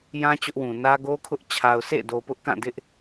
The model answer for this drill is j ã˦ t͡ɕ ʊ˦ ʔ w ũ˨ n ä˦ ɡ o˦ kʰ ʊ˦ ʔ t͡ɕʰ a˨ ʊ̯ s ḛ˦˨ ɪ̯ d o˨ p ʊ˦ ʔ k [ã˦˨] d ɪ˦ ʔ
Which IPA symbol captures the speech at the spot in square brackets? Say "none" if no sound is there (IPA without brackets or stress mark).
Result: ã˦˨